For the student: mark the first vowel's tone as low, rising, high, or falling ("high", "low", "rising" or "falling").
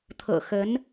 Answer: low